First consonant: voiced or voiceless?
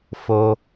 voiceless